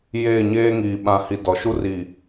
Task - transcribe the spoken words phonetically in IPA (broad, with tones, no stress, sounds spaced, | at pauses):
j eː˦˨ ɲ eː˦ ŋ iː˨ ɓ ã˨ h i˨ d ɔ˨ ʃ u˦ r i˨